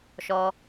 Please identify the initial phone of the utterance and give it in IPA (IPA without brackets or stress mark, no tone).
ʃ